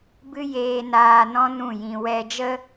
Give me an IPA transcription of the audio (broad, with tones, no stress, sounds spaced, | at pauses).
b ɨ˦ j eː˧ n aː˧ n ɔ̃˦ n ũ˦˨ j ĩ˧ w ɛ˧ d͡ʒ ə˦